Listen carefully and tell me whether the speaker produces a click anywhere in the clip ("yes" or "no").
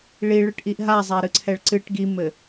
yes